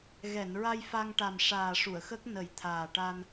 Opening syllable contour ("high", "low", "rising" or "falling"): low